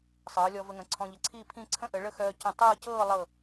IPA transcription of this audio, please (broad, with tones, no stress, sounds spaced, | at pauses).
sˤ ɤː˩˧ lʲ ɔ˧ v ə˧ ŋ ə̃˩˧ ǀʰ ɔ̃˧ ʎ ə˩˧ ǀʰ iː˥˧ pʰ ĩ˥˧ ǀʰ ə̃˥ ʔ ə˩˧ ɭ ə˥˧ x œː˧ c ə̃˧˩ tˤ ɤː˥˧ c ɤː˥˧ lˠ ɤ˧˩